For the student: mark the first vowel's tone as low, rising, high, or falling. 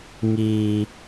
low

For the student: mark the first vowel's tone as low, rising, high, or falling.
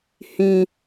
high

